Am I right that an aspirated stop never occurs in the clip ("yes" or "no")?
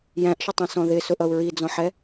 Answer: yes